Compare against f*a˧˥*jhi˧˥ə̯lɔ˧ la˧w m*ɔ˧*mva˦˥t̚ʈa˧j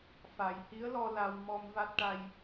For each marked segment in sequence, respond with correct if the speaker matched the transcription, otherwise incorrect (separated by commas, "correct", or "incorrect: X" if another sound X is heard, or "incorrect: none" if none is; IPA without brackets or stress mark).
incorrect: a˨˩, correct